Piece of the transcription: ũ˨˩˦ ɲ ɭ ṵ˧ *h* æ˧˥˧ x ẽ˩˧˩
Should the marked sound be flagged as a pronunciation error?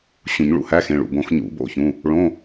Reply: no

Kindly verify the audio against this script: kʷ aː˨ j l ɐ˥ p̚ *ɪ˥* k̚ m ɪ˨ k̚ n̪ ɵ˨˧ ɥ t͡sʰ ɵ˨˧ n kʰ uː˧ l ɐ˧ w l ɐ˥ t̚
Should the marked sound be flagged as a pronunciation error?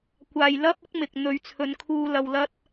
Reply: no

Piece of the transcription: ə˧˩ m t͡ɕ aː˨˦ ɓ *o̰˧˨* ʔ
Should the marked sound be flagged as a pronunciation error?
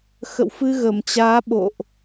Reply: no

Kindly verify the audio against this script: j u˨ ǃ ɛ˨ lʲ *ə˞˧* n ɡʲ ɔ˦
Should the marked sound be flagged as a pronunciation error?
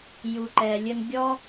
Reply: yes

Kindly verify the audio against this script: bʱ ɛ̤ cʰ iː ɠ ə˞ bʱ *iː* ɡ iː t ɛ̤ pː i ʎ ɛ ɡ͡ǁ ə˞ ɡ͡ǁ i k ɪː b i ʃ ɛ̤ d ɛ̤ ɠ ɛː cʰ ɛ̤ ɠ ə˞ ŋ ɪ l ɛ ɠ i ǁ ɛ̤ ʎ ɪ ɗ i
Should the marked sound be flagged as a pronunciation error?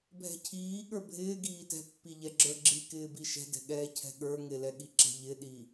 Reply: yes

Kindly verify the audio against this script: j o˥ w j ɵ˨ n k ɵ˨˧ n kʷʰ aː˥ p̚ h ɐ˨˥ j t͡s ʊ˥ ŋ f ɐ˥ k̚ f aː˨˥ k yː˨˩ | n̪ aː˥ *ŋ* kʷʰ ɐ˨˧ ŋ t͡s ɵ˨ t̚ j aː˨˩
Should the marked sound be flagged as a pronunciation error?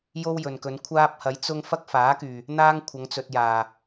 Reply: no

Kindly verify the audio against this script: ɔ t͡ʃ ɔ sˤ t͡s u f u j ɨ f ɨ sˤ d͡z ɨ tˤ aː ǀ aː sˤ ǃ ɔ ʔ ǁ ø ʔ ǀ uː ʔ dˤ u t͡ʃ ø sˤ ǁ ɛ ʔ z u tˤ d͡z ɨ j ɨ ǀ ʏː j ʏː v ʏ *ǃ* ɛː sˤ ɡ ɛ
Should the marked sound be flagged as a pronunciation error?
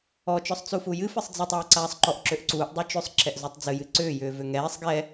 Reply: yes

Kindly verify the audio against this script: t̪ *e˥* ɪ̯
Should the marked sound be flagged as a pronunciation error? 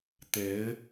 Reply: yes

